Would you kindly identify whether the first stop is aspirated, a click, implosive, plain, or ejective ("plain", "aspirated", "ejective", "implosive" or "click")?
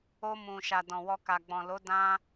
plain